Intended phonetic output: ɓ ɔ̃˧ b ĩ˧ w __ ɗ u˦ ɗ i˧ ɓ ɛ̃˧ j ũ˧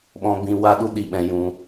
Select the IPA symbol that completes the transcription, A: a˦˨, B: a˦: B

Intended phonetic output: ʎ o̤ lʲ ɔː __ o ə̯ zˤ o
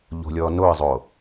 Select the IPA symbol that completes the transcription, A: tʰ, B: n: B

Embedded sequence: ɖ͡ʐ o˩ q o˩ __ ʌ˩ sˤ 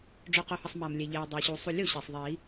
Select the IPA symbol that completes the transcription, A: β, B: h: B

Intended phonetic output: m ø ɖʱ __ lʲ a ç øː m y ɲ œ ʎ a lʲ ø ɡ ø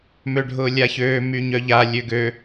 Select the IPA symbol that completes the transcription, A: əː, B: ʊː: B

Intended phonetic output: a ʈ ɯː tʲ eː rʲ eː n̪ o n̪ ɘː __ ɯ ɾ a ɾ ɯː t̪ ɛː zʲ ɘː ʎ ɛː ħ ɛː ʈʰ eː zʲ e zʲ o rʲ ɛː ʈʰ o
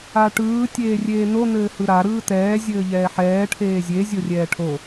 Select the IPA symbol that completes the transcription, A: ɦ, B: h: B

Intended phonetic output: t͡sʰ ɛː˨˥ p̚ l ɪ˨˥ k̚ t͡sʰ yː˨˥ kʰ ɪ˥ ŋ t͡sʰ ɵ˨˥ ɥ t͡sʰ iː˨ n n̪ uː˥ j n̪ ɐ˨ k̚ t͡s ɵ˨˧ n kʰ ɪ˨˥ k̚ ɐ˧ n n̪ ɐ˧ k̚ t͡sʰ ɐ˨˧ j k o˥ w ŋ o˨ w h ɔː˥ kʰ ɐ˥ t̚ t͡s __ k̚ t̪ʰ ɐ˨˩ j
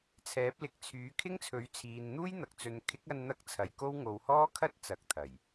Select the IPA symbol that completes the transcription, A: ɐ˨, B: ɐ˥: A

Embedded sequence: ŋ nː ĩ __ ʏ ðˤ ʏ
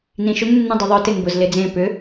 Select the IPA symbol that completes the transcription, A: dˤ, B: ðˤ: A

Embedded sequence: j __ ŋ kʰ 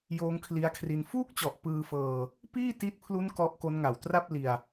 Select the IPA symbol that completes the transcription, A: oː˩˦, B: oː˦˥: B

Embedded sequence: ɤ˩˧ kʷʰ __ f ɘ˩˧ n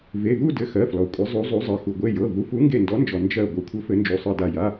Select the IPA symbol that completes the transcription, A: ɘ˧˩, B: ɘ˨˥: B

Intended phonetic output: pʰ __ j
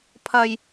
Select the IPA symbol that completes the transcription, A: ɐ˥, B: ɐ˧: B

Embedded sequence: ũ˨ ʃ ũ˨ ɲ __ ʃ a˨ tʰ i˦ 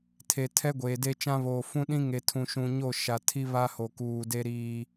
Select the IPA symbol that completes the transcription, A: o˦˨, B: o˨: A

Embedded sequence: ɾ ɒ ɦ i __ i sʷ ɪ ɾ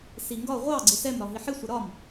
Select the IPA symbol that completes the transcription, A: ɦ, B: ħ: B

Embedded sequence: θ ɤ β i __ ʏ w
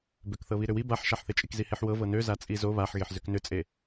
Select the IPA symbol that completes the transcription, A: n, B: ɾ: B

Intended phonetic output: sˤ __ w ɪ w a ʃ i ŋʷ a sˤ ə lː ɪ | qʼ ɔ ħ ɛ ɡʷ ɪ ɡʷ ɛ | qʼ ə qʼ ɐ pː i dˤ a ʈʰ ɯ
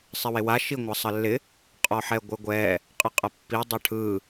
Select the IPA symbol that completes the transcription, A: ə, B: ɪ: B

